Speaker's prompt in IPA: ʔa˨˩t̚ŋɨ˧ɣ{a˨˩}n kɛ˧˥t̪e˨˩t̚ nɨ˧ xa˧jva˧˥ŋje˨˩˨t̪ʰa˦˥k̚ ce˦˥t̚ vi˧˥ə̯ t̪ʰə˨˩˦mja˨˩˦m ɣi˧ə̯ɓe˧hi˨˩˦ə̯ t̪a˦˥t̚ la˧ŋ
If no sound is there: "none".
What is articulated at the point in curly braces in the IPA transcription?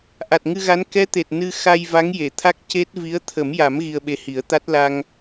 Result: a˧˥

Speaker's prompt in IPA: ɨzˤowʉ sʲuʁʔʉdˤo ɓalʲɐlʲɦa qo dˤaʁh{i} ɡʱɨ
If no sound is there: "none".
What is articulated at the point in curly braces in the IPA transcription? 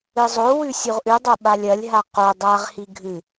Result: i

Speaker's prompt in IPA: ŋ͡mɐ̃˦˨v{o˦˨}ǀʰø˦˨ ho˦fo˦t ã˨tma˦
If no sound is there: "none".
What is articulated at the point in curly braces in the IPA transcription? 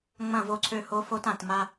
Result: o˦˨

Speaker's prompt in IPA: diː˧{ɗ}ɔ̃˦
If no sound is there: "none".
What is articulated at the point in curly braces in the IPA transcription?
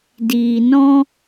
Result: n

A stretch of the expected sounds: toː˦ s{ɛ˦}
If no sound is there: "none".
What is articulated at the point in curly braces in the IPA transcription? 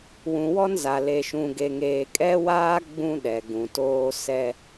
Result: ɛ˦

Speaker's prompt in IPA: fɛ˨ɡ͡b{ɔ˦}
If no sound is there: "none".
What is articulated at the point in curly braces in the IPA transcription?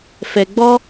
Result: ɔ˦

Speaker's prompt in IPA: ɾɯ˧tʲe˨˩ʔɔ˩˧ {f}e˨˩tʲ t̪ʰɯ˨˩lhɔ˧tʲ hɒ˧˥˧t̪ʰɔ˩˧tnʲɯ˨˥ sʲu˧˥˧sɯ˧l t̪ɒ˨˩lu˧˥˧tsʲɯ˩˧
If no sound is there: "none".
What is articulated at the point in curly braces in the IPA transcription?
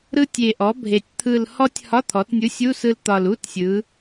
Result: bʱ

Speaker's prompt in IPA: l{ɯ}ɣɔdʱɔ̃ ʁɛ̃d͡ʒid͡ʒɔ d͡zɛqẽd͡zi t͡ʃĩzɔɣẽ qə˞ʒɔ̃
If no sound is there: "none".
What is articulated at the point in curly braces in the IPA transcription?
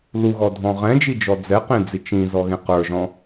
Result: u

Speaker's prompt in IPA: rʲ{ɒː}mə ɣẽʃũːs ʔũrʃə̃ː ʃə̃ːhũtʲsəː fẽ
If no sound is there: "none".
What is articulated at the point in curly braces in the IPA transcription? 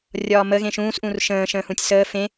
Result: ɒː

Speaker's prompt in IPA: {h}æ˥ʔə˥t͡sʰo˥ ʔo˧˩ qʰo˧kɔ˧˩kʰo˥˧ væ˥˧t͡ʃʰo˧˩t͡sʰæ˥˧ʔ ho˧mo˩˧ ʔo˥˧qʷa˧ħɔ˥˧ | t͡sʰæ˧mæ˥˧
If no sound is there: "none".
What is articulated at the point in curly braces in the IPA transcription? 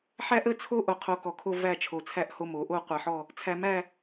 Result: ħ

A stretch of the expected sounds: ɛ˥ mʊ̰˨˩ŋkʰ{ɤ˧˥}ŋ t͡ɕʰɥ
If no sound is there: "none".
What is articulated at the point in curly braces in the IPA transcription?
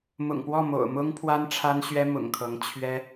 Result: ɤ˧˥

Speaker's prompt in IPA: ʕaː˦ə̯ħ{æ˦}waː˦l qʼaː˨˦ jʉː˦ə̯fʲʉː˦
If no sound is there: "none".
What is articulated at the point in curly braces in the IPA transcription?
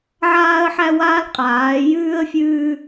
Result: æ˦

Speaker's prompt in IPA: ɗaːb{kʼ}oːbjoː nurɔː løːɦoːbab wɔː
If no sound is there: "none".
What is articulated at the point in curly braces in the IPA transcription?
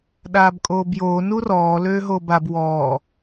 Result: kʼ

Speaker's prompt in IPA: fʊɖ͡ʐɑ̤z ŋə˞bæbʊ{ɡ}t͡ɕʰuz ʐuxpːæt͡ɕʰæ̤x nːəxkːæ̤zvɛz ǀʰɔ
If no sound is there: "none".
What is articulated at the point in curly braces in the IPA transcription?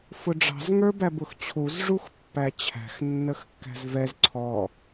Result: x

